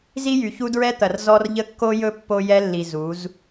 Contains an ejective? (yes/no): no